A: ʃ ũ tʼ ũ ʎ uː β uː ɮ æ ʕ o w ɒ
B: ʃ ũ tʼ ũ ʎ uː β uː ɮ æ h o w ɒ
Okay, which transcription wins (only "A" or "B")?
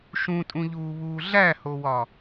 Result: B